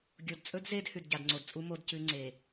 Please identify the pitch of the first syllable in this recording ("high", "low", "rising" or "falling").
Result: low